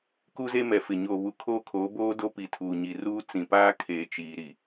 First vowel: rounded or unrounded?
rounded